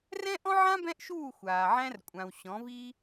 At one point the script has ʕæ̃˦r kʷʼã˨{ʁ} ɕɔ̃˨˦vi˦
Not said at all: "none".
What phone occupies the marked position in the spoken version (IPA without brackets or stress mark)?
w